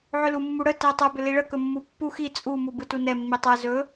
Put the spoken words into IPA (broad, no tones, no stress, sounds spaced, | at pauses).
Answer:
ʕ ʏ l u mː u ɽ ə t ɛ tˤ ʏ b ʏ l i ɭ ə k ɵ mː u pː u x i t͡sʼ u m u b ɯ t u n ɛ mː i tˤ ɛ z ɵ